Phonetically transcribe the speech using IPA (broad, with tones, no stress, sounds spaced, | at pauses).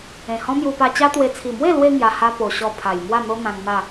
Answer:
ẽ˨˩ h ɔ̃˦ m j u˧ p a˧ t͡ɕ a˦ t̪ w e˧ t͡sʰ i˨˩ m w e˥˧ l w e˧ ŋ j a˧ h a˦ p o˨˩ ɕ ɔ˧ pʰ a˨˩ j m w a˥˧ n̪ o˦ n̪ ã˧ ŋ n̪ a˥˧